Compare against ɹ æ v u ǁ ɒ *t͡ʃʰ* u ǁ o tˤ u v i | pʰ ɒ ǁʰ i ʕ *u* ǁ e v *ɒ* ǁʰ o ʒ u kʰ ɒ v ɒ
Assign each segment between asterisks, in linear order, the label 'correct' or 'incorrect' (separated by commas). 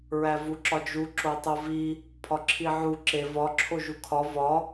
incorrect, correct, correct